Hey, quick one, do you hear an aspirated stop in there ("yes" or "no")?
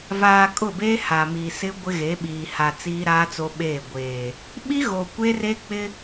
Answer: no